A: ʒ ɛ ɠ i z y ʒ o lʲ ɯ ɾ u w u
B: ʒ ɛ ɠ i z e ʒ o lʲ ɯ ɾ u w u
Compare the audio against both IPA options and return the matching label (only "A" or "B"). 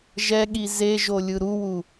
B